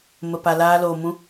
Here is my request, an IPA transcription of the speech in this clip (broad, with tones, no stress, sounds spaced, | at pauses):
m ə˧ p a˧ l aː˦ l oː˧ m ũ˦